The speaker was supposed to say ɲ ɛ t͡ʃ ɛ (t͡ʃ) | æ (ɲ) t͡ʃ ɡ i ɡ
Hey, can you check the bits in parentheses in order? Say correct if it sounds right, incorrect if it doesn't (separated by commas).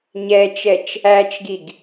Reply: correct, incorrect